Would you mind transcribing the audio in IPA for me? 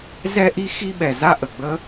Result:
zɛ˥ʔi˥ xi˥ɓɛ˩ za˥ʔə˩ɡ͡bə˥

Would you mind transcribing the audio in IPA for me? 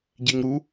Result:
ɟeŋɾu

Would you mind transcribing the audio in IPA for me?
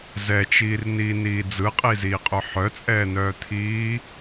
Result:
zɛt͡ʃiːrniːniː d͡zɯqʼiziːqʼœ ħœt͡sʼɛːnœːt̪ʰiː

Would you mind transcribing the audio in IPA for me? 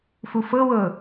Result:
fufɤwɤ

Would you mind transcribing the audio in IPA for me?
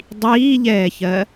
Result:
dˤiːʎɛːçɜ

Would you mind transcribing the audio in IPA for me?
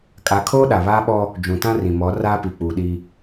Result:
kʼa˨˦kʰoː˦ɗa˨ βaː˦ɓɔ˦ | d͡ʒũ˨tã˦ rĩ˨mɔ˨˦ raː˦pi˨ k͡puː˨ɗi˦

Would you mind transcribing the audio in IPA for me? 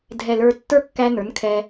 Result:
dʱɛ˨ lə˞˧ tːə˞˦kːæ˧nə˞˨˦nkʰɛ˧

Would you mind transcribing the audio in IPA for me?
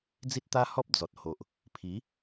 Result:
d͡zi˦t̚t̪a˦hɔ˦p̚ d͡zɔ˨t̚ ho˨ʔ | pʰi˨˦

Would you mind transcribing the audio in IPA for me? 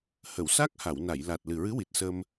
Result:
hə˨˩˨wsa˦˥k̚ ha˨˩˨wna˨˩˨jla˨˩t̚ lɨ˨˩ɹɨ˧˥wi˨˩t̚sə˧m

